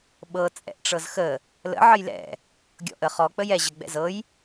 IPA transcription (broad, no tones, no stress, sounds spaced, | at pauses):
ɓ ɤ t͡sʼ ɛ̰ ʔ ʈ͡ʂ ɤ z x ə | l ə̰ ʕ ə j l ɛ̰ | ɡʲ ɔ̰ ʔ ə χ ɔ k͡p ə j ɛ ʑ ə ɡ͡b ɛ̰ z ɤ j